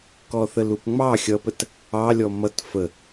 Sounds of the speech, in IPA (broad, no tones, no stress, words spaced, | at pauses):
kɔθəlupŋ͡mɑ xʲʌpət | ɑ lʲɔmʌt fə